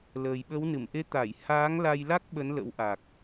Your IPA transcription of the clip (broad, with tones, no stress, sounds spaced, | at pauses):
l əː˨˩ j ɓ ə˨˦ w n ɨ˧˩ m ʔ e˨˦ t̪ a˧˩ j h aː˨˦ ŋ l a˧ j l a˦˥ k̚ ɓ ə˨˦ n l ə̰˧˥ w ʔ a˨˩ k̚